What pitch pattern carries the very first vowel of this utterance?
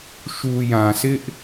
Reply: low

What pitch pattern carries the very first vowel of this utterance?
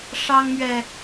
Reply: high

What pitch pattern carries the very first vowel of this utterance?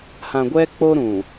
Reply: low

